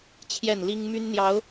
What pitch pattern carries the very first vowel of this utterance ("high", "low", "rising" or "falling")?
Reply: falling